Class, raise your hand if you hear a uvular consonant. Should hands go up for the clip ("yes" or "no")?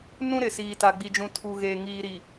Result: no